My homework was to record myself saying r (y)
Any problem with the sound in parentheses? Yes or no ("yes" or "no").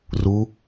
yes